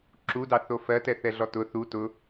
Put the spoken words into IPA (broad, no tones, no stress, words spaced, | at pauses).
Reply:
ǁudɑθo fɜtɛθɛɮɔ tʊ θu tʊ